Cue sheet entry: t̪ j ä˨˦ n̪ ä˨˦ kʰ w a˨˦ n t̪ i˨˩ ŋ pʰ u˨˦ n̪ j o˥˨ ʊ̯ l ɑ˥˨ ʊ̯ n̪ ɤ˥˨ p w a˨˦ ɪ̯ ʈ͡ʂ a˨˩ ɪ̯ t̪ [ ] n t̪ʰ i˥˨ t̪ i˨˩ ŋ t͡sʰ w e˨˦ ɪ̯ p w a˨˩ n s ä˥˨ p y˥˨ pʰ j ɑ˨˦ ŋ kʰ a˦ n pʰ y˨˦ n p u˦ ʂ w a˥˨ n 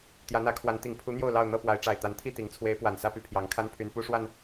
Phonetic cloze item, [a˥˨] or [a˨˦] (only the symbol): a˨˦